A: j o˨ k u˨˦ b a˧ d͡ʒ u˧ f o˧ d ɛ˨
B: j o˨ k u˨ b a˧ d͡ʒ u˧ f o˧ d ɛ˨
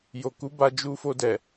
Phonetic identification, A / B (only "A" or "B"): A